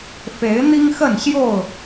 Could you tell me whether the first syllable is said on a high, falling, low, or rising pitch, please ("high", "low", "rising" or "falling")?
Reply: rising